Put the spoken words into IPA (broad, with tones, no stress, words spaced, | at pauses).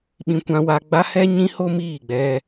ɓĩ˧ kʷã˦wa˦ ɡ͡ba˦hɛ˦ ɲĩ˦ho˦ miː˦˨ɡ͡bɛ˧